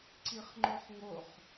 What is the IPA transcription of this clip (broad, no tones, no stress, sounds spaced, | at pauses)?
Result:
ǀ i χ ŋ͡ǃ o χ ŋ o χ